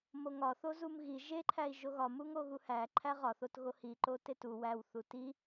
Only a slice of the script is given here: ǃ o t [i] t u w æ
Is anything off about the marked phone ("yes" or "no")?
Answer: yes